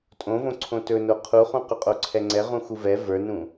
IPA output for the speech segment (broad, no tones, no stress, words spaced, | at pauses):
tʼõvõǀʰõ tɵno qʰuχũ qɵqʼoǀʰɛŋ͡ǀɛ ʁũxuvɛ və˞nũ